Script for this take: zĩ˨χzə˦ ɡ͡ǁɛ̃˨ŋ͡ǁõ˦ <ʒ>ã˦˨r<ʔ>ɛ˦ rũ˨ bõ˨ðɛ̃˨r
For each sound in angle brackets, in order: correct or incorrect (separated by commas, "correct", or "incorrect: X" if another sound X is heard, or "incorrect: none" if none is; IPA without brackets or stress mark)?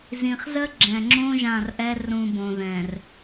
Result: correct, correct